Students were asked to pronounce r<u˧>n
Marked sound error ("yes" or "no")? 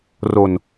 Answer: yes